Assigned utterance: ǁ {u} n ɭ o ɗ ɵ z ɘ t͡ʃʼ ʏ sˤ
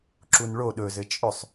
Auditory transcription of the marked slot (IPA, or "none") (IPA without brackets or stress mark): u